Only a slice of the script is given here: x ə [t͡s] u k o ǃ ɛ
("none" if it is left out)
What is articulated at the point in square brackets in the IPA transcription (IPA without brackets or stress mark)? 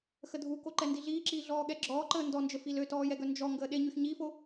dʱ